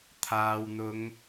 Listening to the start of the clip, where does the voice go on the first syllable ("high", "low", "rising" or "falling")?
low